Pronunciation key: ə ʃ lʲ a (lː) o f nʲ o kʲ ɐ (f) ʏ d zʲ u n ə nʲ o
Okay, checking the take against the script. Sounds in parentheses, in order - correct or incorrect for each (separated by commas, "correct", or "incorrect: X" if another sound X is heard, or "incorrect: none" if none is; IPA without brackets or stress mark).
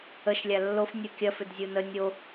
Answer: correct, correct